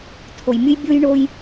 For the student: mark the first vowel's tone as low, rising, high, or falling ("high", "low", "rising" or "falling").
low